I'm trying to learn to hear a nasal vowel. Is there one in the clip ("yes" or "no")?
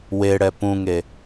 yes